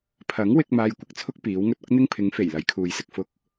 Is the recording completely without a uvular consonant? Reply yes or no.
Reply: yes